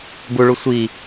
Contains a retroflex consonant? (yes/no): yes